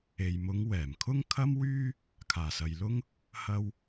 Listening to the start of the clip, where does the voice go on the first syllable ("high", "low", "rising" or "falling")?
low